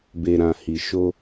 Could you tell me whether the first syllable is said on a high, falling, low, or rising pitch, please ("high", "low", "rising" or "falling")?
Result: low